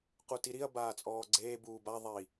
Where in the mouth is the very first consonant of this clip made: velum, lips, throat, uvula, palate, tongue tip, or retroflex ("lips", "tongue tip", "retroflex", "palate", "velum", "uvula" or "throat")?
uvula